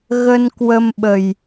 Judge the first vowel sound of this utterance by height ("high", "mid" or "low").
mid